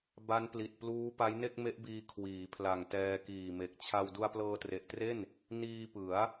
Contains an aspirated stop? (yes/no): yes